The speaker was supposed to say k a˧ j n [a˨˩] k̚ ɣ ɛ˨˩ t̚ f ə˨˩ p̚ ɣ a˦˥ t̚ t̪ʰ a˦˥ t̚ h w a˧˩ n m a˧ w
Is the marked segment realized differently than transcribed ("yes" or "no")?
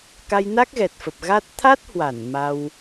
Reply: yes